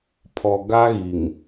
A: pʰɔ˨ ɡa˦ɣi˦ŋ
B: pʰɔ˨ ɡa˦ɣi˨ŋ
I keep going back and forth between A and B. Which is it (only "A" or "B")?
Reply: B